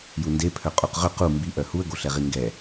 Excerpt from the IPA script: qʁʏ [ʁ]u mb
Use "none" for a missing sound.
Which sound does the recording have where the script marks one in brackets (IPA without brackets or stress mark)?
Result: q